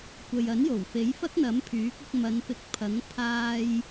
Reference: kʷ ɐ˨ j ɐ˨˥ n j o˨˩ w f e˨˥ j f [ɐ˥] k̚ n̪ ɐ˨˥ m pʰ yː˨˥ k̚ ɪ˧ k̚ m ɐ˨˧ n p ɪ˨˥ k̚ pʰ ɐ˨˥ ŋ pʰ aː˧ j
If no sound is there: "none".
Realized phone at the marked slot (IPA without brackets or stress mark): ɐ˥